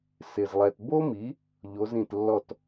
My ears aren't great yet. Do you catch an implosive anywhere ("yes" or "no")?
no